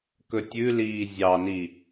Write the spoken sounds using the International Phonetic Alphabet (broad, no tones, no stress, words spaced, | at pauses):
kɵtʲʉliː zʲɑni